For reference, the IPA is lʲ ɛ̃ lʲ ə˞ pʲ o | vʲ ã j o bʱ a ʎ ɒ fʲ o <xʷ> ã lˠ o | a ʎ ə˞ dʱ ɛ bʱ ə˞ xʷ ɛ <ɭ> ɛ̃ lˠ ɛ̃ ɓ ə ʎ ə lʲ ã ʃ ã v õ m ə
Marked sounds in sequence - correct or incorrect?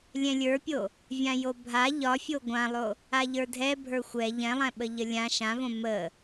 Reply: incorrect, incorrect

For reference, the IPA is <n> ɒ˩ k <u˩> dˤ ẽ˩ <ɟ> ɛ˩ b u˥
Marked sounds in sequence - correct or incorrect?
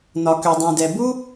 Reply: correct, incorrect, incorrect

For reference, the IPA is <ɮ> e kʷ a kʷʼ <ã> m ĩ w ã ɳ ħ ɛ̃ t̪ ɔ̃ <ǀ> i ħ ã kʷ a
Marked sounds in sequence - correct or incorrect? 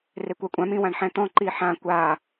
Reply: incorrect, correct, incorrect

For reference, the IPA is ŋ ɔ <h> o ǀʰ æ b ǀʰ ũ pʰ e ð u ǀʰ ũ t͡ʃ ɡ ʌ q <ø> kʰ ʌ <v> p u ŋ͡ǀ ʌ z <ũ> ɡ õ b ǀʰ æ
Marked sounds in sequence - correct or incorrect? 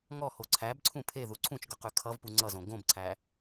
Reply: correct, incorrect, correct, incorrect

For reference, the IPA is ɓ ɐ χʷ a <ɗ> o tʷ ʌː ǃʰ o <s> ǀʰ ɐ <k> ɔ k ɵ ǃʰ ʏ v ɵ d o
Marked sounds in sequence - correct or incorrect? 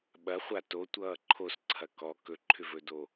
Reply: incorrect, correct, correct

